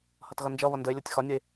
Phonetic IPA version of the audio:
h ʌ t ɣ ʌ n d͡ʒ ʌ β ʌ n d ə e̯ lʲ ɔ tʲ x ɒ nʲ ʌ e̯

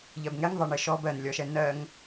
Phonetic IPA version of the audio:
ʎ ɜ b ŋ ɛ ŋ ðˤ ɛ ɳ ɘ ʃ ɔ b ɜ n lʲ ɔ ʃ ɛ n ɜ ŋ

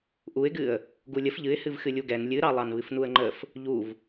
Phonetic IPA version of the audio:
ʔ u ɪ̯ ɡ ɨ ə̯ | ɡ u lʲ ə f ʎ ɨ ɪ̯ h ɨ v x ɨ lʲ u ɡ ɛ n lʲ ɨ ɾ ɑ lˠ ɑ n β ɨ f n u ə̯ ŋ͡ǃ ə f | ʎ u v

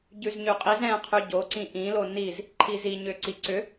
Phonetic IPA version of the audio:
ɟ ʉ z ɲ ʉ qʼ i z ɛ̃ qʰ ʉ ɟ o ǀ ĩ ʔ ĩ l o n i z | ǃʰ i z i ɲ ʏ ǀ i ǀ ʏ

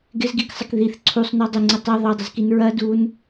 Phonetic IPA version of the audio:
ɡ ɪ z ɡ i k sˤ ɪ k ð i θ ǀʰ u sˤ n ɔ dˤ ɪ ŋ͡ǀ ɪ tˤ e ðˤ e dˤ ɪ z k i n ɹ ɐ d u n

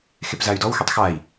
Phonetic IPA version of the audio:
x e p z a y̯ d ɔ w x ɛ tˤ x a i̯

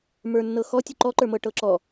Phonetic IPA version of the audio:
m ə˞ nː ɤ x ɔ tʲ u ǃ ɔ ǃ ə˞ m ɤ ʈ ɤ ǁ ɔ

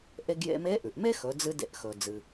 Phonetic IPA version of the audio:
ʔ e˧ ɡ j ḛ˧ m e˧˥ ʔ ʉ˩ ʔ m e˥ x ɵ˩˧ d͡z ɨ˧ d ḛ˧ ʔ x ɵ˩ d͡z ɨ˩

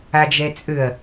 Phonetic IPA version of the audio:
a d͡ʒ ɛ t͡sʼ ø ɐ̯

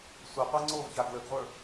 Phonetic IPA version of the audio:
sʷ ə qʷ a ŋ͡ǀ o v ç a ɡ l ə ɡ ʁʷ ə˞

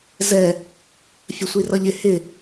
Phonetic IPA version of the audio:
z ɛ | fʲ ə sʷ i r ʌ ʎ ɪ h ɪ

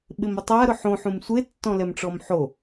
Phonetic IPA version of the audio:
ɓ ɪ m ɪ tˤ a ɾ ʊ ħ õ ħ ũ m sʷ e tː ɔ̃ l ɛ m ʈ͡ʂ ɔ m ħ o

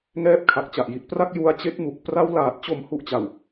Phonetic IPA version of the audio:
ŋ ɛː˦˥ p̚ kʰ a˨˩ k̚ t͡ɕ a˨˩ ʔ j i˨˩ t̚ p r a˥˩ k̚ j u˧ a̯ t͡ɕ e˦˥ k̚ m u˨˩ k̚ p r a˧ w l aː˨˩ t̚ t͡ɕ o˨˩ m h u˨˩ ʔ t͡ɕ a˨˩ w

